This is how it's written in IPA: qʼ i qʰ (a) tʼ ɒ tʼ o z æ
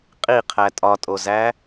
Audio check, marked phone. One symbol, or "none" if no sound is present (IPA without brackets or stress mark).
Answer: æ